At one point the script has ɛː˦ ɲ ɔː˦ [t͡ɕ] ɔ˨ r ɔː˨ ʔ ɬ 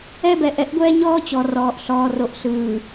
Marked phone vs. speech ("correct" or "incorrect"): correct